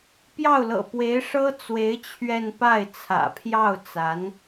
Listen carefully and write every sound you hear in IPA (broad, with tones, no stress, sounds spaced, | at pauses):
p j ɑ˥˩ ʊ̯ l ɤ̰˨˩ p w e˧˥ ɪ̯ ʂ ɤ˥ t͡s w e˧˥ ɪ̯ t͡ɕʰ ɥ ɛ˥˧ n p a˥˩ ɪ̯ t͡sʰ ä̰˨˩ pʰ j ɑ˥˩ ʊ̯ t͡s a˧˥ n